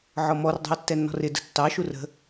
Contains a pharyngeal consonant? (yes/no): yes